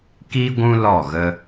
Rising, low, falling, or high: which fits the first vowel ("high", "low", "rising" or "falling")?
high